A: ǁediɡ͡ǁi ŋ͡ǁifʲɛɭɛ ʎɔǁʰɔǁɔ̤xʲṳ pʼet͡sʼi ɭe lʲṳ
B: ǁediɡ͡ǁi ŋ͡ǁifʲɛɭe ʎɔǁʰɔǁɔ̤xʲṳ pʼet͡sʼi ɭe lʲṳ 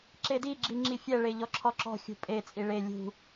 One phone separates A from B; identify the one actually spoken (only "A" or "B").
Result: B